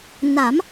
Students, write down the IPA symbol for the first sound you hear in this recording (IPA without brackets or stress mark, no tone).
n